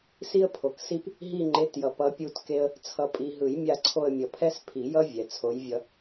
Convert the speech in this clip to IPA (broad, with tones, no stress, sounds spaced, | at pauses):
s i˦ ə̯ pʰ o˨ k s i˦ p | ɦ i˦˨ ŋ͡ǃ e˨˥ t j ʌ˨ p ʌ˨˥ pʲ u˦˨ t k e˦ ə̯ | t͡sʰ ʌ˨ pʼ i˨ ɦ ɯ˨˩˦ j mʲ a˦˨ ǀʰ o˦˨ ə̯ mʲ ʌ˨˩˦ pʰ ɛ˦ s pʰ i˨˩˦ j ʌ˦ vʲ ɛ˨ t͡sʰ o˨˥ j vʲ ʌ˦